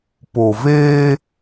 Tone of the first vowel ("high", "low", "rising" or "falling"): low